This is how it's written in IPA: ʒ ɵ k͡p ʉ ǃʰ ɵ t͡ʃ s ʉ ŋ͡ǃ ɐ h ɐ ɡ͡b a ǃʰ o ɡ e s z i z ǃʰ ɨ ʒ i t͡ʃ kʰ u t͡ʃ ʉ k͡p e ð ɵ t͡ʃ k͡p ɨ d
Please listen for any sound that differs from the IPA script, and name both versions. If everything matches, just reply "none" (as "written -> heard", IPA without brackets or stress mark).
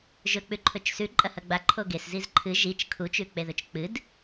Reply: ŋ͡ǃ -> ǃʼ